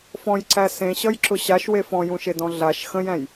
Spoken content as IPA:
f ɔ̃ j ǀ æ s ẽ ɕ ʌ j ǁ ʊ ɕ a ʃ w e f ɔ̃ j ũ ʃ e d ɔ̃ ɮ a ʃ x ə̃ j æ̃ j

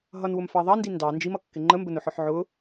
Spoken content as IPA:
ɦ ʌ n w ʊ m f ɑ ðˤ ɑ n d i n d ɑ n d͡ʒ i m ʌ kː ɪ ŋ͡ǃ ə m b ə n ʊ ħ ɔ ħ ʕ ʊ

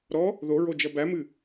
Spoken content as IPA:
ɾ ɔ | ð o ɹ o d͡ʒ ʌ b æ m ɨ

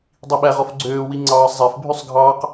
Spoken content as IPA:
dˤ i ɓ æ ʁ ɔ f ɡ͡ǀ øː w i ŋ͡ǀ ɑː sˤ zˤ æ f bʱ y sˤ ɡʱ ɑː q

